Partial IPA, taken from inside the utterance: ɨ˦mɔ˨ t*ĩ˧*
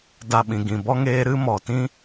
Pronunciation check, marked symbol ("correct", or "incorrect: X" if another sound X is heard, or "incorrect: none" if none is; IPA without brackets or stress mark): incorrect: ĩ˦